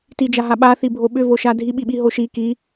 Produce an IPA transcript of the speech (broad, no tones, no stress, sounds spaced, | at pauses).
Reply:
t i d͡ʒ a ɦ a ɓ a θ i bʱ o ɓ ʏ v o ʃ a dʱ i ɓ i ɓ i ɦ o ʃ i k i